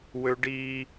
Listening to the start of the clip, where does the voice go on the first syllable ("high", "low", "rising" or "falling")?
high